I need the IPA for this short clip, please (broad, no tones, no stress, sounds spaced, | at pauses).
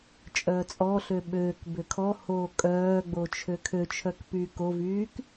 t͡ʃʼ œː t͡sʼ ɔ ɬ ø ɓ øː k b ø kʰ ɔ h oː kʼ œː ɡ͡b o t͡ʃʰ ø kʰ ø t͡ʃʰ œ k p yː k o v yː k